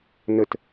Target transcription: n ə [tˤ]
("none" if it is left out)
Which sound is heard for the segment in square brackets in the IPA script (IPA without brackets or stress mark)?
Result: t